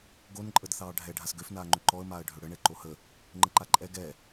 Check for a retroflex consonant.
present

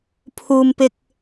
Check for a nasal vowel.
absent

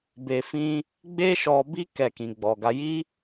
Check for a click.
absent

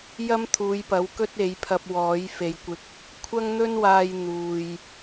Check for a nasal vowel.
absent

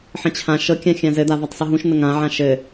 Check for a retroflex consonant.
absent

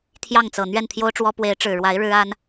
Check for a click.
absent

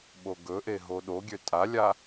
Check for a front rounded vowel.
present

